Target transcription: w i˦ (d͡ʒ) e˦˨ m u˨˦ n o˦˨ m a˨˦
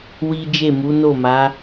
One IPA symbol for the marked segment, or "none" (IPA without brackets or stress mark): d͡ʒ